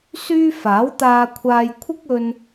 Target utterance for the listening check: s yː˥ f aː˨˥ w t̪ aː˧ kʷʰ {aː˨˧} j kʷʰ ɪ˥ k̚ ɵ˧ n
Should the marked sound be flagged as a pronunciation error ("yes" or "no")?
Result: yes